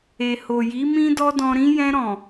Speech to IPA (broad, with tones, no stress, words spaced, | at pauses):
e˨ho˨ji˨˦ mĩ˦dɔ˦dɔ̃˧ɾĩ˦ jɛ̃˧ɾɔ̃˨